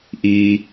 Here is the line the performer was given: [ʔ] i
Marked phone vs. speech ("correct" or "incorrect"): correct